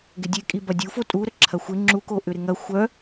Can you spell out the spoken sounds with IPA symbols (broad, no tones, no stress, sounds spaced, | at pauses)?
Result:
ɡ ɪ dʲ e kʼ i b ɐ dʲ u f o tʼ u ɾ ə ǁʰ ɐ xʷ ɪ ŋ͡ǁ u k o ʔ ʏ ɾ ɪ ŋ ɐ xʷ œ